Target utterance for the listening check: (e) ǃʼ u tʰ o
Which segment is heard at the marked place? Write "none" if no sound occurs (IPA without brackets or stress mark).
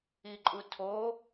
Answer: i